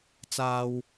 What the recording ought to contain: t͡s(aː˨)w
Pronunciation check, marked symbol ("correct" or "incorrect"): correct